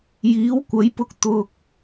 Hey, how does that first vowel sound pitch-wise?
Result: rising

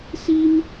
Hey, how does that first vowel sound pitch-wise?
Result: high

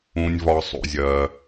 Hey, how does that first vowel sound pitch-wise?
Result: low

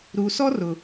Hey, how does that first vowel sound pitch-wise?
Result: low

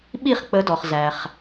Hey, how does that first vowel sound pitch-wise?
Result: falling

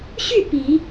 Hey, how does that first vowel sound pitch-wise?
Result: falling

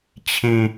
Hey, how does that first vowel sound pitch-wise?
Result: low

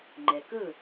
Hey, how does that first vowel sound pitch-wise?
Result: low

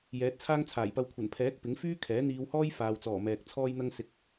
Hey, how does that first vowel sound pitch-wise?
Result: rising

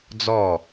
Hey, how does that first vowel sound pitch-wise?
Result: falling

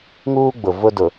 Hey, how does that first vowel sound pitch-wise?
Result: high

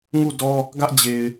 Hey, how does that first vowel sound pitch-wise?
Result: falling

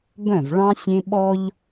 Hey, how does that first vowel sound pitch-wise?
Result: falling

